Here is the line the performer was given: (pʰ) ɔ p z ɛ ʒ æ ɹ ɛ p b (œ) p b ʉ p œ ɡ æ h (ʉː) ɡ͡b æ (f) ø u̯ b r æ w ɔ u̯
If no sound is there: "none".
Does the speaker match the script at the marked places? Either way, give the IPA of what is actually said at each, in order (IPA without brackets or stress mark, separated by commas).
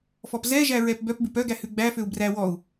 f, œ, ʉ, f